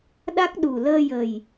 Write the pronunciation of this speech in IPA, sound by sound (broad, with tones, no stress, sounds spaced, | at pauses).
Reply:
ɗ a˦˥ k̚ ɗ u˨˩ l əː˧ j ə˨˩ j